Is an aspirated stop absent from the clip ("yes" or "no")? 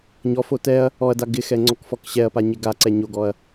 yes